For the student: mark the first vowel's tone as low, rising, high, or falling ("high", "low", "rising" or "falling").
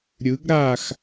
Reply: rising